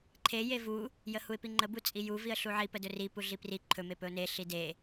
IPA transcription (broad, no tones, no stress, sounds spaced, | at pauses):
ǃʰ e j e v u | j ə h u ɪ̯ p i ŋ͡ǃ ə b u t͡sʼ i j u v i ə̯ ɬ u ʕ i p ə d ɵ r i p u ɮ i p r i ǃʰ ɵ m e p ɵ ʊ̯ n e ɬ i d e